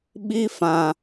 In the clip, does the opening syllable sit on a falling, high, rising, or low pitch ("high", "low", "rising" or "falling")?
high